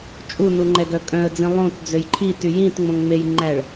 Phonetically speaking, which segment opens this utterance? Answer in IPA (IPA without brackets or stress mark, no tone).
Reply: t͡ʃʼ